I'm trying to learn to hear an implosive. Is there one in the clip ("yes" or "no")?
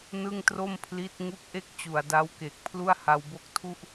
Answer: no